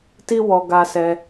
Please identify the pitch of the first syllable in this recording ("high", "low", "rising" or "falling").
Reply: high